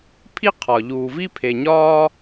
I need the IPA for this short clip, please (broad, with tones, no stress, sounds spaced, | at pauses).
pʰ i˥ qʰ ɒ˨ ʎ uː˨ v i˦ pʰ e˨ ɲ ɒː˥